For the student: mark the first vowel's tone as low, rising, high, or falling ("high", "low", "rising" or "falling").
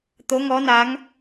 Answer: rising